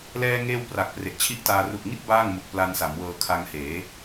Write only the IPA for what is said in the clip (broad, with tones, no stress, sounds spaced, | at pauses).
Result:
l ɛː˧ ŋ eː˧ w p r a˨˩ k̚ p r e˨˩ ʔ t͡ɕʰ i˥˩ ʔ t aː˧ r u˨˩ ʔ ŋ i˥˩ t̚ b aː˥˩ ŋ m u˨˩ k̚ p l a˧ n s a˩˦ m w ɤː˧ kʰ a˧ ŋ h eː˩˦